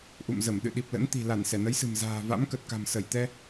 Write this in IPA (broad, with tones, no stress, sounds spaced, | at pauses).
ʔ ṵ˧˨ m z ə˧˩ m ɗ ɨ̰˧˨ ɗ i˨˩ p̚ l ə̰˧˥ n t̪ i̤˨˩ l a˧˩ n s ɛ˧˩ n ə˨˦ j s ɨ̤˨˩ m z a̤ː˨˩ v a̰˧˥ m k ə˨˩ t̚ k a̤˨˩ m s ə˧˩ j t̪ ɛ˧